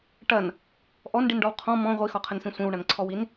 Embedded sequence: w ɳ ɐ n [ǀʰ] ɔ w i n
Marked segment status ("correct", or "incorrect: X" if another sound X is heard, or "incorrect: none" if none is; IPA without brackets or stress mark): correct